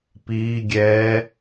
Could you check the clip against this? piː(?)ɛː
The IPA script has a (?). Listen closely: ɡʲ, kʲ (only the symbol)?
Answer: ɡʲ